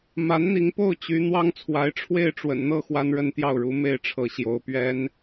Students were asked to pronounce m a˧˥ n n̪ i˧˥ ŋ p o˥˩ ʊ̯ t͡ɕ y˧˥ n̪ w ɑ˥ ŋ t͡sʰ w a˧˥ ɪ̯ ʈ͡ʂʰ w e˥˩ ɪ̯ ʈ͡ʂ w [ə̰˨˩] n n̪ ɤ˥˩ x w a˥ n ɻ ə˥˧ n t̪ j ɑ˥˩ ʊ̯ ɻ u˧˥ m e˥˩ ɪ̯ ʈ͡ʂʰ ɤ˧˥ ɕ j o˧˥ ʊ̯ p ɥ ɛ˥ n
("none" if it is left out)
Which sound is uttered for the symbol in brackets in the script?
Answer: ə̰˨˩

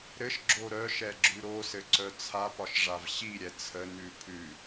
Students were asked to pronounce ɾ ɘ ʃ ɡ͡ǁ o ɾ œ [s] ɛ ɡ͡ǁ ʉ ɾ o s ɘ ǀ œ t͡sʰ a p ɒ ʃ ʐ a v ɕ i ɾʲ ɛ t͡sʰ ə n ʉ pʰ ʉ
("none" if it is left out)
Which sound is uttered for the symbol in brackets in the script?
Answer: ʃ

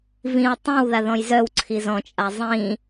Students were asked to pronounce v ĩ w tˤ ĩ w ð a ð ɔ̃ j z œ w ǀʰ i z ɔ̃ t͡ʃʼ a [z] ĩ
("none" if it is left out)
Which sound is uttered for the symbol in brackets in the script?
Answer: zˤ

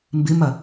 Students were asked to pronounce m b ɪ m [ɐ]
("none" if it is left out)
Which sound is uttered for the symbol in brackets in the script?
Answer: ɐ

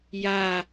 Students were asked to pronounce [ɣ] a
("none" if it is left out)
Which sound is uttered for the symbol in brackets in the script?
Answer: j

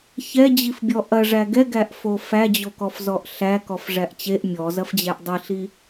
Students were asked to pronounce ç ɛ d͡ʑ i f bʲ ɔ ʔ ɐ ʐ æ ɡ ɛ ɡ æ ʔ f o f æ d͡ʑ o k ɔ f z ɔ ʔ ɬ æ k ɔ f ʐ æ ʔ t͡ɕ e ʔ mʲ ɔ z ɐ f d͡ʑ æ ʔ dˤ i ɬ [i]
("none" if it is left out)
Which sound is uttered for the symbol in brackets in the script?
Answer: i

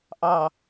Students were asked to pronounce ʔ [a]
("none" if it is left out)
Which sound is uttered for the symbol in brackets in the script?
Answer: ɑ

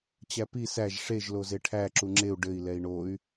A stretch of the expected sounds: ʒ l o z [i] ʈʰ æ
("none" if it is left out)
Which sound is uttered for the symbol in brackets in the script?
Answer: e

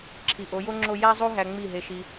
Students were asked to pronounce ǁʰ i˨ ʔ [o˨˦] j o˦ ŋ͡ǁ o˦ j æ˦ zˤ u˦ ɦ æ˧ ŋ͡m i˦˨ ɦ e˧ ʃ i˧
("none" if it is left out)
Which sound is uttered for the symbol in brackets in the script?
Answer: o˨˦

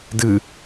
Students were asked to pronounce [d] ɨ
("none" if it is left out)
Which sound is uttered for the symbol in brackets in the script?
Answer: d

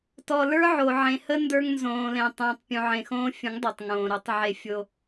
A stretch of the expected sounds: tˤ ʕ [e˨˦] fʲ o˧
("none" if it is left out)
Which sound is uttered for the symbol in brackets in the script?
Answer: e˧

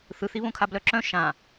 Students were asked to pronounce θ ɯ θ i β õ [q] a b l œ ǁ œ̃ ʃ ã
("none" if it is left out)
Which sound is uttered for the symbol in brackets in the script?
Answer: kʰ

